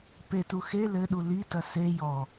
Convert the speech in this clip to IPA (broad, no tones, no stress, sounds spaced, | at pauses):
p e t u x e l ɘ ɗ u l i t ɐ s e j ɔ